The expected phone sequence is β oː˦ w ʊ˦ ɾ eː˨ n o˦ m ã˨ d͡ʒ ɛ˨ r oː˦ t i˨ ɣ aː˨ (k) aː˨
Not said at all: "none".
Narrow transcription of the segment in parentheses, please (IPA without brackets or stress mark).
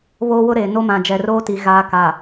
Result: k